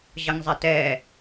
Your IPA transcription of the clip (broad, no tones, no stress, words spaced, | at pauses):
ʑʌŋzˤɛtɛ